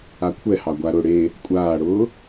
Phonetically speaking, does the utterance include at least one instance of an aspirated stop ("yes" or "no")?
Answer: yes